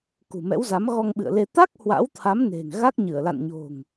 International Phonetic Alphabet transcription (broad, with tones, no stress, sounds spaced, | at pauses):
k ṳ˨˩ m ɛ̰˧˥ w z a˨˦ m ɣ ɔ˧ ŋ ɓ ɨ̰˧˨ ə̯ l e˧ t̪ a˦˥ k̚ h w a̰˧˥ w t̪ʰ a˨˦ m n e̤˨˩ ŋ ɣ a˦˥ k̚ ɲ ɨ˧˩ ə̯ l a̰˧˨ n ɲ o̤˨˩ ŋ